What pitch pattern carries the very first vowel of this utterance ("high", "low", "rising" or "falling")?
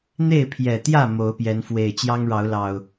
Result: falling